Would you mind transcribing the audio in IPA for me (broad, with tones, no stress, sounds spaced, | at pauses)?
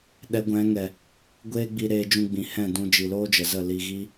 ɗ ɛ˨˦ ɡʷ ɛ̃˨˦ ŋ ɛ˨ | ɡʷ eː˦ ɡ͡b i˧ ɾ eː˧ d͡ʒ ũ˧ ɡ͡b ĩ˨ h ɛ̃˦˨ d ũ˧ d͡ʒ i˨ l oː˦ d͡ʒ ə˨ z ə˦˨ l i˧ ɣ i˦